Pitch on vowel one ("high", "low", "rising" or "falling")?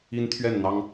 high